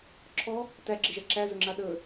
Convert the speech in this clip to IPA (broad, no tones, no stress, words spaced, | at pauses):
ǁʰɔ | tæɡ͡ǁeʒa ǁæzɵŋ͡ǁa ɗə